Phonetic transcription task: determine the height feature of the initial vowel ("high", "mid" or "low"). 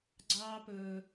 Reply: low